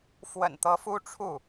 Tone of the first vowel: low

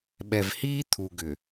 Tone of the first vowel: low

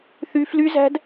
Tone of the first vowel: high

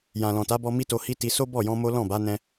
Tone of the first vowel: low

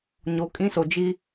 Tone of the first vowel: low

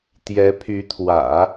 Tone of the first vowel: rising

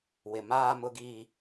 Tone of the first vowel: low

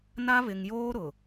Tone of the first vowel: high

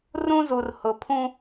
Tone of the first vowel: high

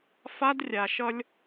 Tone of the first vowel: high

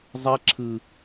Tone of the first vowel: high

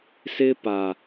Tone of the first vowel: high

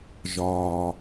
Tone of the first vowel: low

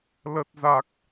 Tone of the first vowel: low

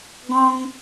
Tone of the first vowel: high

